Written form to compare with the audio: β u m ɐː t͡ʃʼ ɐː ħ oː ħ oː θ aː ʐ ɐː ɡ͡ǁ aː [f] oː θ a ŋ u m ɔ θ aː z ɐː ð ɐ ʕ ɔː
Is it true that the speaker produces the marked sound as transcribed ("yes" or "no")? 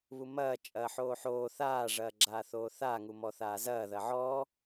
no